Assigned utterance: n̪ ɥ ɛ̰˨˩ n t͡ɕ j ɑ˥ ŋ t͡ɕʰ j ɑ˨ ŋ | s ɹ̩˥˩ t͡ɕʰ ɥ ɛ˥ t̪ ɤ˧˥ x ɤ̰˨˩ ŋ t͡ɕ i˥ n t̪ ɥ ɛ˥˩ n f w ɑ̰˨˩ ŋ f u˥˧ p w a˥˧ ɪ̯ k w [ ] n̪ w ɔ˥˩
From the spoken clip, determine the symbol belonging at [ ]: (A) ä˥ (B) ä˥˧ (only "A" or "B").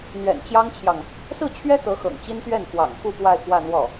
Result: B